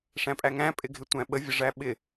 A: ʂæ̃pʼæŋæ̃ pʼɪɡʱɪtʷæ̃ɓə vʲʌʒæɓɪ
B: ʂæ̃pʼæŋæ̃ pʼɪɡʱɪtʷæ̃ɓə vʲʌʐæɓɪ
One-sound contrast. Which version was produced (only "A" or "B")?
B